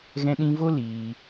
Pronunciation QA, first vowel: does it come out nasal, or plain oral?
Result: nasal